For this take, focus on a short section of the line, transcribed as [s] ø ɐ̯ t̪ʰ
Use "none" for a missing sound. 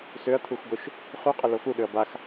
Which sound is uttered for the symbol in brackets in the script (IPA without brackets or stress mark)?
s